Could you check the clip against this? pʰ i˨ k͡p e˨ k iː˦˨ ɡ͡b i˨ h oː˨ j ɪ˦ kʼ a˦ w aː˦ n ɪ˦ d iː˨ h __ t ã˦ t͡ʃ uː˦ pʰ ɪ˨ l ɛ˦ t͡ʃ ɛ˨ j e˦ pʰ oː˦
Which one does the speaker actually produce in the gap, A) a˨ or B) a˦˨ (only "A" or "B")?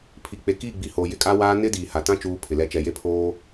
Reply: A